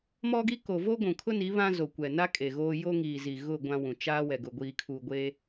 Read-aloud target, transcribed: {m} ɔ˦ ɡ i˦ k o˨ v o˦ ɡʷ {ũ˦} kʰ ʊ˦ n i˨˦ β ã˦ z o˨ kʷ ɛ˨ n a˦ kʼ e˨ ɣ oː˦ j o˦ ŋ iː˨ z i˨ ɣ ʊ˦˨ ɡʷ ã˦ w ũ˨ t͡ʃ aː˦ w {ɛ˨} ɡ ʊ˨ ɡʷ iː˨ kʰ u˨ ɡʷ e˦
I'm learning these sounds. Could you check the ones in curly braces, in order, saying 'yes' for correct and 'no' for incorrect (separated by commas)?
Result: yes, no, yes